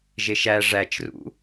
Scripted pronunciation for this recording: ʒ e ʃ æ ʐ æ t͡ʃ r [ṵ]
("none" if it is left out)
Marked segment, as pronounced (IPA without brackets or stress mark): ṵ